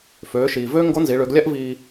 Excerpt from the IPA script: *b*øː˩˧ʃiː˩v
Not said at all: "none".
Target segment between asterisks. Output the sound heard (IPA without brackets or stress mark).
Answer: f